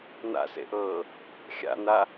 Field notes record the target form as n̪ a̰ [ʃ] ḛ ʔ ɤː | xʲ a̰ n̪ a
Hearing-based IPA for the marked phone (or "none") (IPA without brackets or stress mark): s